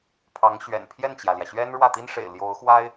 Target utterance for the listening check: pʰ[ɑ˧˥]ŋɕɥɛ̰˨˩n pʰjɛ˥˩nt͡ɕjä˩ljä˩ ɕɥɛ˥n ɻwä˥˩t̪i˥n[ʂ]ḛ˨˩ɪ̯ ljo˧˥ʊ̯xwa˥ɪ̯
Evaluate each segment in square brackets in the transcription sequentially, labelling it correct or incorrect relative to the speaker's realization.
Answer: correct, correct

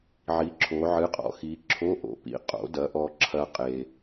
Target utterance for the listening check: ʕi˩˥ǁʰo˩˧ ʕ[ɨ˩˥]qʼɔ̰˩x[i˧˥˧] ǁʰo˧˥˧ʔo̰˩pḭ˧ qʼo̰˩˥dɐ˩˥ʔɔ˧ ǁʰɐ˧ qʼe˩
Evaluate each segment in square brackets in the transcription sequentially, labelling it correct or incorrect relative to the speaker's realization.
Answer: correct, incorrect

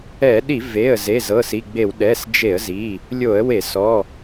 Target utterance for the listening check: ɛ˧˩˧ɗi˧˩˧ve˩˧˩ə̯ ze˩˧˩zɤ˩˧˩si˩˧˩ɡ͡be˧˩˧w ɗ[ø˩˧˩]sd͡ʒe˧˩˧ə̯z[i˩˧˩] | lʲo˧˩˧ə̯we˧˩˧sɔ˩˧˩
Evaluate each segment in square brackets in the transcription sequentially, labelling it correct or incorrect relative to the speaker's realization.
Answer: incorrect, correct

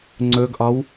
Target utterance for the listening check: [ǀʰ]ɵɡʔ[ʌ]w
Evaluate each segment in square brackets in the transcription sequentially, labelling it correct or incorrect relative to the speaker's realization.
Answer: incorrect, incorrect

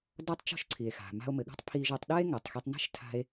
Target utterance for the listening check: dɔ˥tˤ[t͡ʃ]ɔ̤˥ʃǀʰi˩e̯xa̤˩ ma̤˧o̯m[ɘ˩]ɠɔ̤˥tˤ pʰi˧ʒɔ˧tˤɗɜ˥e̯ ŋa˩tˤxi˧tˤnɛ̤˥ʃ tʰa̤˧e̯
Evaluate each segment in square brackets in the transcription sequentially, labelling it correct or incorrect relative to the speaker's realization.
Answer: correct, correct

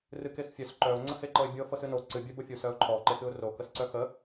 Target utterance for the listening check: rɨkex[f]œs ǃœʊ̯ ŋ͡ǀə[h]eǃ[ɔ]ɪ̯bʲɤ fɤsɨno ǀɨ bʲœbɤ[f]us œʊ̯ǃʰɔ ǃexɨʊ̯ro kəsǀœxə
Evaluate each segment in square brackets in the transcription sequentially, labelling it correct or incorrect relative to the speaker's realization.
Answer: incorrect, correct, incorrect, incorrect

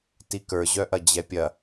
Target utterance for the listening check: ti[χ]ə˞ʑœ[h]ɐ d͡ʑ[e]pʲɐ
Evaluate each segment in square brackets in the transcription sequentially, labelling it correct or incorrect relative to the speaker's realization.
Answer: incorrect, incorrect, incorrect

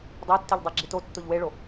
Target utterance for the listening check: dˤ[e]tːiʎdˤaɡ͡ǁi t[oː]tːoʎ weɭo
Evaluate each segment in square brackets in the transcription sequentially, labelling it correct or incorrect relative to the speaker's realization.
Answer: correct, incorrect

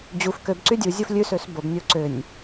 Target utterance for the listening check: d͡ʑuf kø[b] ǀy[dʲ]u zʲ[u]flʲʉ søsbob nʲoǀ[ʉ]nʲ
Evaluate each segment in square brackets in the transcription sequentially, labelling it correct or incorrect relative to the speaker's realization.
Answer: correct, correct, incorrect, incorrect

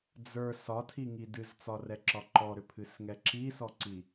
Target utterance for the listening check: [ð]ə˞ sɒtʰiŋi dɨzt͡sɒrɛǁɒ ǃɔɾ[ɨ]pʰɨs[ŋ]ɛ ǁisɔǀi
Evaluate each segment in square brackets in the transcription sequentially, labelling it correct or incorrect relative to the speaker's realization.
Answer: incorrect, incorrect, correct

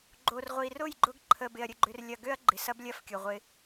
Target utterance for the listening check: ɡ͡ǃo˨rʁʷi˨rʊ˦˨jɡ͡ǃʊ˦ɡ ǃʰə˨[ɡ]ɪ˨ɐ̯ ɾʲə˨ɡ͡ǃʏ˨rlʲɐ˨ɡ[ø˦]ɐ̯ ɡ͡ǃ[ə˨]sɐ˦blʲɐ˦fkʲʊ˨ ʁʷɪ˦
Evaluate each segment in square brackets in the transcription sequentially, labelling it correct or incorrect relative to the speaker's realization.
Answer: incorrect, correct, incorrect

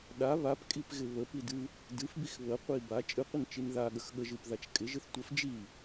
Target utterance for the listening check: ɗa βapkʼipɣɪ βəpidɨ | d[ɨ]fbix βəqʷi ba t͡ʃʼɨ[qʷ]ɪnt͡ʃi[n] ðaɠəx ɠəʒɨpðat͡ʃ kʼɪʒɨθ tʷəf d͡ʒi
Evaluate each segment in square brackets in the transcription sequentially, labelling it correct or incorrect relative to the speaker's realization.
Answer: correct, correct, correct

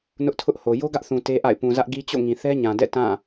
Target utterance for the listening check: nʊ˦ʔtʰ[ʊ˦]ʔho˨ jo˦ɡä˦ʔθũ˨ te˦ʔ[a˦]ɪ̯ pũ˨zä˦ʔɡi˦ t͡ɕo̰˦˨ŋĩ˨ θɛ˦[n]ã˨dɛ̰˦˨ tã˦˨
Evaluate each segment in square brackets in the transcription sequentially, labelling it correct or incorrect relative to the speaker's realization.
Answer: correct, incorrect, incorrect

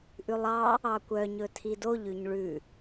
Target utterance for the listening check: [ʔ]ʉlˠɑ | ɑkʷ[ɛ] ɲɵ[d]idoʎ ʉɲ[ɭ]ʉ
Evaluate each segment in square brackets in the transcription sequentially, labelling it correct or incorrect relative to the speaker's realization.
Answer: correct, incorrect, incorrect, correct

